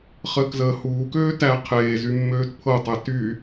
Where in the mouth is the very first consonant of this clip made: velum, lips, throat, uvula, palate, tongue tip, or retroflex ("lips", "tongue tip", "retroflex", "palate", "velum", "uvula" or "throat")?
uvula